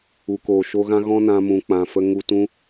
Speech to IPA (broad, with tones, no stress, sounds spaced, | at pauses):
u˨ k oː˨ ʃ o˧ ɣ ã˦ ɣ ɔ̃˦ n ã˧ m ũ˨ k͡p ã˨ f ə˧ ŋ u˧ t ũ˦